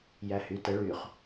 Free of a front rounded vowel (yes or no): no